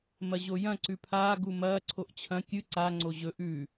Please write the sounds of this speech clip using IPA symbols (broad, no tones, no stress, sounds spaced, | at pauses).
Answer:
m ɐ ʑ o j ɐ̃ ǀ ʉ pʰ aː ɡ u m ɐː ǀʰ o ʔ t͡ɕʰ ɐ̃ kʲ ɨ ǀ a ŋ͡ǀ o ʑ ɵ ʔ ʉː